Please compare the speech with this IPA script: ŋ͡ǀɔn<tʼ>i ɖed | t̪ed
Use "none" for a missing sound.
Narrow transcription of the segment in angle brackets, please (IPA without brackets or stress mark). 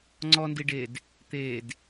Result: d